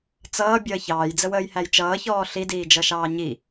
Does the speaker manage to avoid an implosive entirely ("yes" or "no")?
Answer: yes